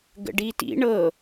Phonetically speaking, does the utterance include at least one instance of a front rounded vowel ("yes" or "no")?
no